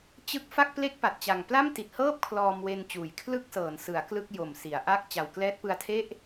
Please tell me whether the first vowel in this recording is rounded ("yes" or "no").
no